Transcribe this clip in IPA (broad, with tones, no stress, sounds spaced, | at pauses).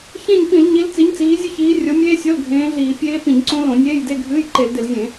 ç ẽ˦˨ ɲ p ĩ˧˩˧ l ɲ i˨˦ l t͡s i˨˦ ɲ t͡s iː˨˦ zʲ ɨ˦˨ ç iː˨˦ rʲ o˨˦ mʲ eː˦˥ sʲ o˧˥˧ l ɡʱ ẽː˨˦ ɮ iː˧˩˧ pʲ eː˦˥ p ĩ˧˩˧ ɲ ǀ õ˦˥ l õ˧˩˧ nʲ eː˧˥˧ j d e˧˥˧ ɡʱ ɨː˧˥˧ j ǃ e˧˩˧ l d ɪ˧˩˧ l zʲ ẽ˧˩˧